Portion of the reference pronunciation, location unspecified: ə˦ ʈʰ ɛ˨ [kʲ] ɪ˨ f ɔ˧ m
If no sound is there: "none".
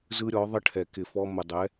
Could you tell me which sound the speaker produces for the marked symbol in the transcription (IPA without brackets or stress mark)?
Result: k